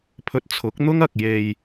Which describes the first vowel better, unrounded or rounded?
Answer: rounded